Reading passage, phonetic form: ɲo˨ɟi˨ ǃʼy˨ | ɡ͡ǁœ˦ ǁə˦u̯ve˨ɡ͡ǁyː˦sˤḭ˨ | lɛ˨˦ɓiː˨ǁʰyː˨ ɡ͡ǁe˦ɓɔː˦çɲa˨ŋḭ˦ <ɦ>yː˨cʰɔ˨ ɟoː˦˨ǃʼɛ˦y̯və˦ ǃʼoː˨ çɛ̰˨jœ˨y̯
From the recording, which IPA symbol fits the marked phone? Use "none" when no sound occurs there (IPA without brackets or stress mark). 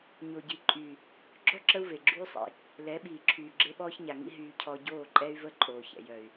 ɦ